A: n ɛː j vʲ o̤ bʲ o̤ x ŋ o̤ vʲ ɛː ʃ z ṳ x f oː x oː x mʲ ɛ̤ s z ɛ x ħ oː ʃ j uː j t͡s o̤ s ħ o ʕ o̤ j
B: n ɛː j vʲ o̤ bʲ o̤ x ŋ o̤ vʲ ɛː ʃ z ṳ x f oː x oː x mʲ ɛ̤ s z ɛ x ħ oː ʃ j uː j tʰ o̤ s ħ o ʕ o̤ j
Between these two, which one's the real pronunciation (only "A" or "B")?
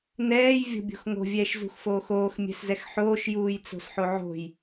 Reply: A